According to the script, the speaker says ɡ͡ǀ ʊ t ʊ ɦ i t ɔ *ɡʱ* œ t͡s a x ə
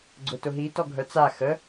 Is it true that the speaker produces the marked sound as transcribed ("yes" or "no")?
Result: yes